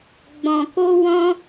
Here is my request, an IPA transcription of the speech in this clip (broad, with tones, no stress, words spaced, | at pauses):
ɡ͡bɔ̃˨ko˧wɔ̃˧